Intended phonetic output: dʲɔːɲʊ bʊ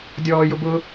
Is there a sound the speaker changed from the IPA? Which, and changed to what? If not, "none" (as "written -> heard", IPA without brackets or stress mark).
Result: ɲ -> j